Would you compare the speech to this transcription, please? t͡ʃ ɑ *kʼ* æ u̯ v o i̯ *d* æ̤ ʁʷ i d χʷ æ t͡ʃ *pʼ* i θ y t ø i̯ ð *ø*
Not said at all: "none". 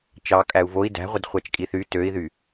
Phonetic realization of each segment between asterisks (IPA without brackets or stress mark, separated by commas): kʼ, d, kʼ, y